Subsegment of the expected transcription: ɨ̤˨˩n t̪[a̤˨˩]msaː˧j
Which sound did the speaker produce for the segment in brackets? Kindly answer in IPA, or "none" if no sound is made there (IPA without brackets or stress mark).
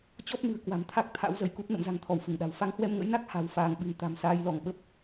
a̤˨˩